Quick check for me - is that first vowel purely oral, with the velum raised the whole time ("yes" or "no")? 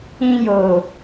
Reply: no